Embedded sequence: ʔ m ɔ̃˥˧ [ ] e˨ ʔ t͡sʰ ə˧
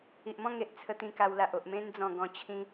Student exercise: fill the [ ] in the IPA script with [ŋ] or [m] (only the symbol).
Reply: ŋ